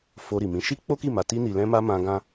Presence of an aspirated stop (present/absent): absent